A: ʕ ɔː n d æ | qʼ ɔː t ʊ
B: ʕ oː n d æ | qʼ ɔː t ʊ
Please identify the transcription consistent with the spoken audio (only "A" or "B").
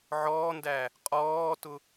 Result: A